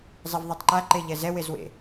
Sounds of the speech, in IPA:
zˤ ɛ v ðˤ ɛ tˤ ǃ a ǃ e ʎ ɛ z ɛ w e z w ḛ

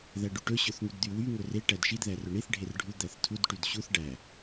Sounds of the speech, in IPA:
ð æ ɖ y ʈ ɵ ɕ ɵ θ ŋ y d d̪ y w y ŋ ɵ r e ʈ æ d ʃ i d ð æ r ɵ ɳ i θ ɖʱ e r ɖʱ u d̪ æ θ tʰ u d ʈ y d ɕ u θ ɖ æ

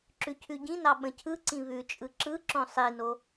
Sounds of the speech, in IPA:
ǁ ʉ cʰ ʉ ɟ ĩ n ɑ ɓ ə̃ cʰ ɯ ǀ ĩ β ʉ t͡ʃʼ ɯ ǁ ɯ ǁ õ sˤ i n o

